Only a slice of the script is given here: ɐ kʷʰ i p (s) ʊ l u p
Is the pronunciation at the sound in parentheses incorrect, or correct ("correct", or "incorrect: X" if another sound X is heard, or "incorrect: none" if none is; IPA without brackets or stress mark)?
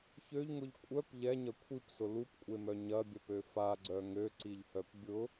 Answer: correct